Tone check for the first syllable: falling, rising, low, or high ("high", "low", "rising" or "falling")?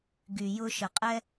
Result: low